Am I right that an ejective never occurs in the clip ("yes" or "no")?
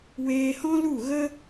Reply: yes